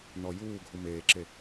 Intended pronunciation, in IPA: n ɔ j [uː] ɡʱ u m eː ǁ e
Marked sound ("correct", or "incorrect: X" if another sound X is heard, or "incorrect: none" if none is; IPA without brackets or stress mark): correct